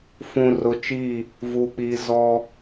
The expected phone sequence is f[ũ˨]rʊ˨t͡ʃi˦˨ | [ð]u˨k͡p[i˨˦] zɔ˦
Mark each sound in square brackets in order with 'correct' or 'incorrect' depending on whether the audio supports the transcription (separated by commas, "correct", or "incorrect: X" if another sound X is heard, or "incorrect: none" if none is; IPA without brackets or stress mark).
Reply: correct, incorrect: v, correct